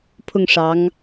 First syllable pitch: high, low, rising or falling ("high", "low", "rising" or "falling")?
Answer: falling